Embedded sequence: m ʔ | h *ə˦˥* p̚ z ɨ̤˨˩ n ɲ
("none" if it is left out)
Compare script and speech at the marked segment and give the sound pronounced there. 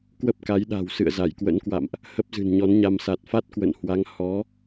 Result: ə˦˥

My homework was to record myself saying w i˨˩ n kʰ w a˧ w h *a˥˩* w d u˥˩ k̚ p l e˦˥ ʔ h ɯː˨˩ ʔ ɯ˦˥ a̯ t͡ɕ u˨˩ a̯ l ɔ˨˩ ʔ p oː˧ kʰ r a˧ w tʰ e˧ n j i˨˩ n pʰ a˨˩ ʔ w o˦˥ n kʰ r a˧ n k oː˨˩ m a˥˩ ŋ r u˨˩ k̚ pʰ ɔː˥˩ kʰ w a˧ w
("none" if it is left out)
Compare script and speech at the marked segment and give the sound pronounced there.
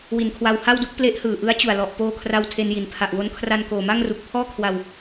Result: a˥˩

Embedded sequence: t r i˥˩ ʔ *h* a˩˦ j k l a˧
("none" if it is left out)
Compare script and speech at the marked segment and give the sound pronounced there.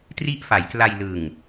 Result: f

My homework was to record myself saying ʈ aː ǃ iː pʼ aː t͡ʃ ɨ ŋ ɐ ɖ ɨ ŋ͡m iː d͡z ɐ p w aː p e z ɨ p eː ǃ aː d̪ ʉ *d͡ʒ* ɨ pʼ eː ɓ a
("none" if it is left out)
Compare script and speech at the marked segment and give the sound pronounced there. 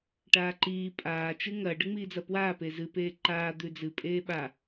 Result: d͡z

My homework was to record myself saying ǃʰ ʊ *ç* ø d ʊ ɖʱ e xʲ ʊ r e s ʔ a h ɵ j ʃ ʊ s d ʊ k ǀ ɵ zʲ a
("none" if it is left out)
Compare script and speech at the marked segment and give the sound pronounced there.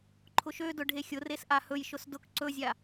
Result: ʃ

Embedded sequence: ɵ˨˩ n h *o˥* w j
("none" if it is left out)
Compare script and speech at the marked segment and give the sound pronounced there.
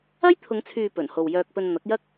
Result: o˨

